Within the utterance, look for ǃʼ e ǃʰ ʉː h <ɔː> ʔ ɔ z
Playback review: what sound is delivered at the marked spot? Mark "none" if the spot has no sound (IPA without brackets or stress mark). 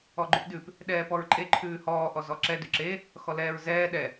ɔː